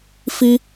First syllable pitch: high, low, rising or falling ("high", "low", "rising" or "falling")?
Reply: high